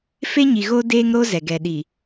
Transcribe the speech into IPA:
f e˦ ɲ i˨ ɣ o˦ d eː˦ ŋ ɾ o˦ z ɛ˨ ɡ ɛ˨ ɗ i˨

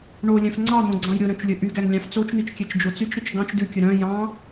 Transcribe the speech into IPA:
ɳ o lʲ œ̃ f ŋ͡ǀ ɑ n̪ õ ɡ͡ǀ ɑ̃ j ɾʲ o ɾ œ̃ t͡ʃ lʲ ɵ ʔ y ɡ æ ŋ lʲ ɑ̃ f t͡s o t͡ʃ n̪ i t͡ʃ kʲ ɛ t͡ʃ d͡ʒ o t͡s y t͡ʃ ɾ i t͡ʃ ɡ ɑ̃ t͡ʃ d ʉ kʲ ɵ ɾ œ̃ j ɑ̃

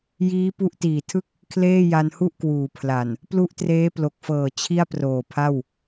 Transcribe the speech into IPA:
j iː˦˥ p u˦˥ ʔ t iː˨˩ tʰ ɯ˥˩ k̚ | kʰ l eː˥˩ j a˧ n h u˥˩ ʔ k w uː˩˦ pʰ l a˨˩ n | p l u˥˩ ʔ t r eː˦˥ p l o˨˩ k̚ f ɤː˨˩ t͡ɕʰ i˥˩ a̯ p r oː˨˩ pʰ a˥˩ w

